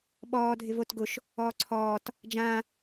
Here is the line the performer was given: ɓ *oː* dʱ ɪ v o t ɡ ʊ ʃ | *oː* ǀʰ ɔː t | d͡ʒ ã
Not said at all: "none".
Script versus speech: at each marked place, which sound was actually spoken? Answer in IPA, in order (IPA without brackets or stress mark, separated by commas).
ɔː, ɔː